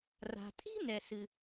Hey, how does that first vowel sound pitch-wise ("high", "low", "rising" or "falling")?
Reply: low